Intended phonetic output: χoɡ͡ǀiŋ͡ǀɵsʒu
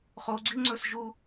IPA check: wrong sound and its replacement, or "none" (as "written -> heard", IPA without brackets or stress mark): none